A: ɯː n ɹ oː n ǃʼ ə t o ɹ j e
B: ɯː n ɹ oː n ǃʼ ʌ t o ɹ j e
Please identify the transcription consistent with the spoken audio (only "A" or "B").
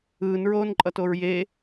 B